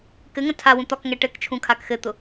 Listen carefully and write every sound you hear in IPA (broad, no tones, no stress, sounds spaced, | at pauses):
k ɘ ŋ ə̃ tʰ a w ũ t̪ ɒ k ŋ ɛ ʈ ɘ k t͡ʃʰ ũ kʰ a k x ɘ t̪ ʊ